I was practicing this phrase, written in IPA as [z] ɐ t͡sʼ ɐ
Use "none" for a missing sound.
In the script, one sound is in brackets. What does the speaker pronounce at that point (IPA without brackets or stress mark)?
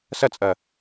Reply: s